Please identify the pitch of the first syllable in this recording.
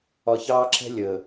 low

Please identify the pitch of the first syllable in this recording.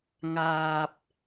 low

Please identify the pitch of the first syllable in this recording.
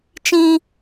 high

